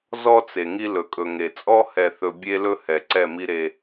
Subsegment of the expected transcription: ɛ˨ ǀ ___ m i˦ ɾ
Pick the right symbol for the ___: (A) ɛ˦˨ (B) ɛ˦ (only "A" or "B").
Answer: A